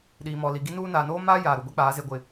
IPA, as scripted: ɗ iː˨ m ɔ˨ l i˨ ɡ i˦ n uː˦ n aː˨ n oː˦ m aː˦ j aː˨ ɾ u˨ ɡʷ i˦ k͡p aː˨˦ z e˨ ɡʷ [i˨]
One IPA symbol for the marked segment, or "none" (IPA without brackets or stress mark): ɪ˨